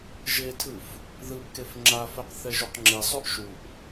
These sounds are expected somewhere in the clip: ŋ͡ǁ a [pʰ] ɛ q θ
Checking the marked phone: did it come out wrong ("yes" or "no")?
yes